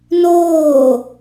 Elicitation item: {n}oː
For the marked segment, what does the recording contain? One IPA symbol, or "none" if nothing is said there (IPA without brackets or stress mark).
n